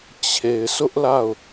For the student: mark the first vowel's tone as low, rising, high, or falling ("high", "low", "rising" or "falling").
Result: low